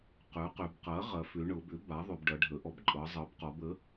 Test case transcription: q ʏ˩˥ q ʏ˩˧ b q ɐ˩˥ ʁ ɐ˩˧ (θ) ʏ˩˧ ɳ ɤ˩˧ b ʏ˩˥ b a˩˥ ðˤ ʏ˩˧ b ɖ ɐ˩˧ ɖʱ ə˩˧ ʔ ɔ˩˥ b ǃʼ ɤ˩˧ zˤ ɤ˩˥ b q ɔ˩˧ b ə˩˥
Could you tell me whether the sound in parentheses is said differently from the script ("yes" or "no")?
yes